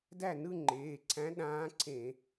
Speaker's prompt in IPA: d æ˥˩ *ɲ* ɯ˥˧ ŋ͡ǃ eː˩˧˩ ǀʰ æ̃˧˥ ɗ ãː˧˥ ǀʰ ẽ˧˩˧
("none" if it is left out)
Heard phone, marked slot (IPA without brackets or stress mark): n